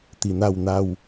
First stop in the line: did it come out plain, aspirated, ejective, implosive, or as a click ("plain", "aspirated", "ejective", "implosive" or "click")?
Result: plain